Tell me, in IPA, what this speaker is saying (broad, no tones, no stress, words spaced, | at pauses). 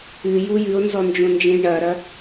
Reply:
ɨju jɨo̯nzɔnd͡ʒõnd͡ʒẽj ɳɐɾɐ